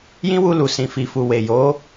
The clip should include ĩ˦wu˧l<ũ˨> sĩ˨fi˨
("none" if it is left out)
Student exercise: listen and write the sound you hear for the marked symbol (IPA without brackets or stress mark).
u˨